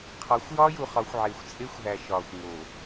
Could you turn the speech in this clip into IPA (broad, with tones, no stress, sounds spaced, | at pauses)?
qʰ ɒ˨˦ xʷ j ɒ˦ j u˨ χ ɒ˨˦ xʷ ʕ e˨ xʷ t͡sʼ e˦ xʷ ɦ æ˨ ʃ ɒ˨ xʷ ŋ o˨